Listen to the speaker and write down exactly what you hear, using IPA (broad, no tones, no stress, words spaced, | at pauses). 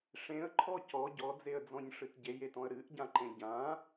ʂẽə̯ǃʰɔ cɔ ɟɔd͡zeə̯d͡zɔ̃ɲʂɨt ɟejetɔ̃ə̯ ɾɨʔɟãǃẽ ɟã